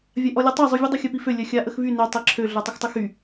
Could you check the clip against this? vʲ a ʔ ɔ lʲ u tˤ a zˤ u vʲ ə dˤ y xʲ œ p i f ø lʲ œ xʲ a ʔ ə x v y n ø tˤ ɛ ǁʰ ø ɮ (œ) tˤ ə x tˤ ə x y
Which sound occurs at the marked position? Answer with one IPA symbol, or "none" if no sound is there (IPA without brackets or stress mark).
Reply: œ